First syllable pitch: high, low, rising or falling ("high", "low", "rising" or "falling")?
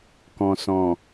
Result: low